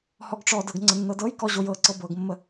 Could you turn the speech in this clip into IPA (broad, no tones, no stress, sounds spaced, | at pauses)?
h ɔ ɡ ʈ͡ʂ ɔ d ɤ ɡ ŋ͡ǀ ə nː ɤ d ɤ j k ɔ ʑ o j ɤ ǀ ɤ b ɤ ɡ mː ə